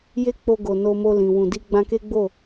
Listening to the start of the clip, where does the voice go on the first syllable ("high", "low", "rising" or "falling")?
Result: high